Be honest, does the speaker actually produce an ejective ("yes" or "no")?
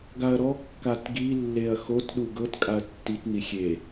yes